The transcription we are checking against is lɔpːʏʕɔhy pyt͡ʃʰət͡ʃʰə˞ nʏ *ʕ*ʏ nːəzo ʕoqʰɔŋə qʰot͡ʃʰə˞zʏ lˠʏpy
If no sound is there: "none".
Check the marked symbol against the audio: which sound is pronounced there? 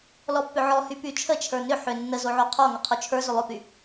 ħ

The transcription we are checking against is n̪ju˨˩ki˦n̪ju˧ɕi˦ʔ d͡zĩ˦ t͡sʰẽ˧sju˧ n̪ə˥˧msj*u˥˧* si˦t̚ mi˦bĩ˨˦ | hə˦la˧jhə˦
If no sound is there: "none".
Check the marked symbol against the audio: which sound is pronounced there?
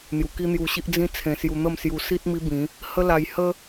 u˧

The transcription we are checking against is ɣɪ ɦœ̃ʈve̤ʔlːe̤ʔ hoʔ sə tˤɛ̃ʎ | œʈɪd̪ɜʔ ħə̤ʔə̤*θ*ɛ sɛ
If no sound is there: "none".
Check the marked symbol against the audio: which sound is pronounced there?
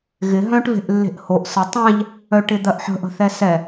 θ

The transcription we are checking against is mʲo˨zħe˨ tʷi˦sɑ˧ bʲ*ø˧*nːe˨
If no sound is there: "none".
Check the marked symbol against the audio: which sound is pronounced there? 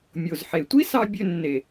ø˧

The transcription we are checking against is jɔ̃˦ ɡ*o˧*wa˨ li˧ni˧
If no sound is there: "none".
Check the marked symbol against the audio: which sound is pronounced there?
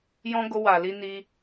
o˧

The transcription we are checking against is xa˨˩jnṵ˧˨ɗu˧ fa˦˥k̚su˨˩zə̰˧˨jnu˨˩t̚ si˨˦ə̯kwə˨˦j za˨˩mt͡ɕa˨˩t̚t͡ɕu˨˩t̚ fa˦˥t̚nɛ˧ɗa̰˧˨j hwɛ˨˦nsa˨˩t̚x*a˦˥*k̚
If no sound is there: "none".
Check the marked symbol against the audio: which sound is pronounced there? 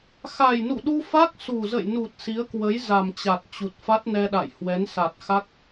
a˦˥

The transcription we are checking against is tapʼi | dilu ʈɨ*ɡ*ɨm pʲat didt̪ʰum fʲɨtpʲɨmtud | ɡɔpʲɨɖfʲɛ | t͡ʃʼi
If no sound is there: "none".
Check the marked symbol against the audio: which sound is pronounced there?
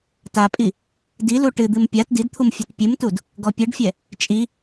d̪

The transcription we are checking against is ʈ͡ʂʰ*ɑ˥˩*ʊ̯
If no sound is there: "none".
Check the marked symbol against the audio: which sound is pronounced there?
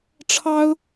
ɑ˥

